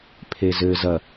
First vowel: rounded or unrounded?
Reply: unrounded